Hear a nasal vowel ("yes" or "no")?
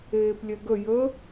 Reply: no